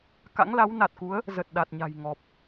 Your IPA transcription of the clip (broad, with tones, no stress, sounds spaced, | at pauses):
k a̰˧˥ ŋ l a˨˦ w n a˨˩ t̚ k u˨˦ ə̯ | z ə˨˩ t̚ ɗ a˨˩ t̚ ɲ a̤˨˩ j ŋ ɔ˨˩ p̚